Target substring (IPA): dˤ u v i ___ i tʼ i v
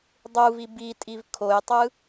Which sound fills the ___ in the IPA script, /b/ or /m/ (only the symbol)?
b